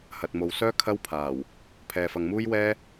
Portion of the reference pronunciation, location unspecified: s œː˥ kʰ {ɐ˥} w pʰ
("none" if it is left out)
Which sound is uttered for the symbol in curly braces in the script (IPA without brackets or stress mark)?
ɐ˥